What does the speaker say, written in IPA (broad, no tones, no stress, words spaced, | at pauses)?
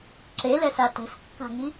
ǁelɛsa tɛ̤skːa̤ŋi